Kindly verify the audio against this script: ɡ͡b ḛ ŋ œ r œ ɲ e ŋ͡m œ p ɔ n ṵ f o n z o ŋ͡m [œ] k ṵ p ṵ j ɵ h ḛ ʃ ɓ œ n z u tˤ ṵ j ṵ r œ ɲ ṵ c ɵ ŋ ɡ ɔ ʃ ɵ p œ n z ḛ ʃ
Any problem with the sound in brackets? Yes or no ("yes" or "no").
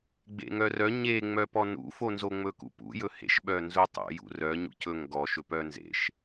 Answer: yes